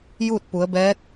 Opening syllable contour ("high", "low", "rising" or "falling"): falling